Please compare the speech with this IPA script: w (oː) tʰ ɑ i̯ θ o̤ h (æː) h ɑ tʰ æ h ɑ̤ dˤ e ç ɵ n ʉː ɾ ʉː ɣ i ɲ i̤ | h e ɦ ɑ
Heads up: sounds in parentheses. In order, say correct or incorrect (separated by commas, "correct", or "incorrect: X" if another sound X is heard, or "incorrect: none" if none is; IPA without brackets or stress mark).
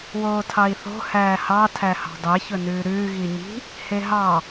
correct, correct